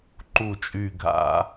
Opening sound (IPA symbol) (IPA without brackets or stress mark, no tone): ǃ